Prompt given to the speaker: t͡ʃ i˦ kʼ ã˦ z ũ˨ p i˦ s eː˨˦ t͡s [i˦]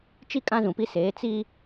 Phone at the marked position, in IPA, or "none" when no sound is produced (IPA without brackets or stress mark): i˦